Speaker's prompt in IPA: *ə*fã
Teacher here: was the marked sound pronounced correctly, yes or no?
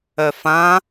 no